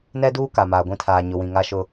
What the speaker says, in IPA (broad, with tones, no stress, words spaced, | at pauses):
nɛ˦duː˦ ka˨maː˨ɡʷĩ˦tʰaː˨ ɲʊ˨wĩ˨ŋa˦ʃʊ˦